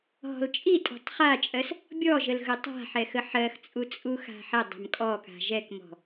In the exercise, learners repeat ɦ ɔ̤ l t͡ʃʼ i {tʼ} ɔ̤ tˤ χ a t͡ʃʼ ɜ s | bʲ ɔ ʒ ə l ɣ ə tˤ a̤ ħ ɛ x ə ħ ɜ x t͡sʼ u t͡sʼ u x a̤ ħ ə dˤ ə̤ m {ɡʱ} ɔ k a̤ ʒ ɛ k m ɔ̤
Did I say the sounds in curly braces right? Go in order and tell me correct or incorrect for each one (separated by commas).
correct, incorrect